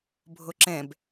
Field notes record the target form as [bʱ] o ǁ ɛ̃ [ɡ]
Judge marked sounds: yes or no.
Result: yes, no

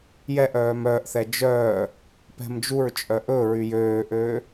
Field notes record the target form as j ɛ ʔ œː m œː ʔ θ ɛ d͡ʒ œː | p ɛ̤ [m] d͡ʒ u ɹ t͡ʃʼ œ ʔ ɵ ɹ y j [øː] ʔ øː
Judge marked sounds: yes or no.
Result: yes, yes

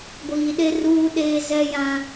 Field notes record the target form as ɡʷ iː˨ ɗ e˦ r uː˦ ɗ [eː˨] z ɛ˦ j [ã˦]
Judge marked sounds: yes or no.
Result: no, yes

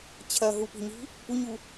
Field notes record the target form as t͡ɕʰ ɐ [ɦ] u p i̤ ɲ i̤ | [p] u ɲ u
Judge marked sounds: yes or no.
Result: yes, yes

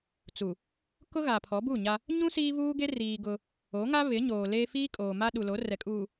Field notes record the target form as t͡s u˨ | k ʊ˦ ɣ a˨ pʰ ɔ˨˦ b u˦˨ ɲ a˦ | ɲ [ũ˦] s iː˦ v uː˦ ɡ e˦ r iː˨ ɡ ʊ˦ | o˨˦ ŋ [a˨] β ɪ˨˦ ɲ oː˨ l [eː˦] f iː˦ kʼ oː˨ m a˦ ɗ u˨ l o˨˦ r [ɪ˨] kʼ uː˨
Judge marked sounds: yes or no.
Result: yes, no, yes, no

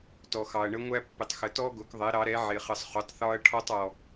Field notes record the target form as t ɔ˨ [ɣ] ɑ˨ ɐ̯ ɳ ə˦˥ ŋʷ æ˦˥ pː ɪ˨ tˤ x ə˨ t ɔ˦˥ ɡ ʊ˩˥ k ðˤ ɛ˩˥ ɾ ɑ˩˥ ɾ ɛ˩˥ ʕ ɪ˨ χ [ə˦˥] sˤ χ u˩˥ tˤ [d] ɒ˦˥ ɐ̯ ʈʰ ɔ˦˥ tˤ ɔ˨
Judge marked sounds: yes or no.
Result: no, no, no

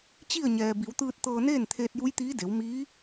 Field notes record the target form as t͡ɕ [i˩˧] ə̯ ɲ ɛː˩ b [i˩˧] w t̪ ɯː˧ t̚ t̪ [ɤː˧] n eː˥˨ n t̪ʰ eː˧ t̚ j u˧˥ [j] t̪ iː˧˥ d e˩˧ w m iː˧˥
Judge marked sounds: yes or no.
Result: no, yes, yes, yes

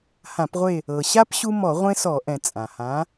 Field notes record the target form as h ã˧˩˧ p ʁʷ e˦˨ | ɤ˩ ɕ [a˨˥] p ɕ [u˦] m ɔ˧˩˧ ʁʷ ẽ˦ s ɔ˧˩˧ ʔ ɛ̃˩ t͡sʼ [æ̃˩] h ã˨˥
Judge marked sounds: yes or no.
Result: no, yes, no

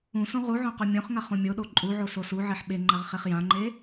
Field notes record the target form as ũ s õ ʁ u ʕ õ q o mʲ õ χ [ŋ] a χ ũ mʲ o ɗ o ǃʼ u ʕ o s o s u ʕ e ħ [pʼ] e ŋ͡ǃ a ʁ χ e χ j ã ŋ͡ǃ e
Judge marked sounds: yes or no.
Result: yes, no

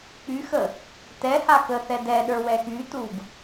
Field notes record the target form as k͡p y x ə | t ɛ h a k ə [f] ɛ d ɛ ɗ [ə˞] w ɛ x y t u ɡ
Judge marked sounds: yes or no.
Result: no, yes

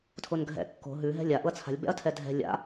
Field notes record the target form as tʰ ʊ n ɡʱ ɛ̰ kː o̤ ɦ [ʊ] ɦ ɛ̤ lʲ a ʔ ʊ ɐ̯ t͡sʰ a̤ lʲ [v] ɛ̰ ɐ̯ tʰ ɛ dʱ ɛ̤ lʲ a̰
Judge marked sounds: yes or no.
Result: no, no

